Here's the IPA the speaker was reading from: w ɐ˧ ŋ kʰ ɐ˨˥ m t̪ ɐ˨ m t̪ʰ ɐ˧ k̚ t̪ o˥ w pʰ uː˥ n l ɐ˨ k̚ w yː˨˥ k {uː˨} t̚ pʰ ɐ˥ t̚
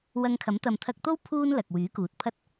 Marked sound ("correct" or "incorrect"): correct